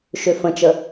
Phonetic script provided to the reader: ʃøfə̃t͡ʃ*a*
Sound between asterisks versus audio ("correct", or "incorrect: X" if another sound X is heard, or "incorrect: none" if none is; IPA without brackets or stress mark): incorrect: ə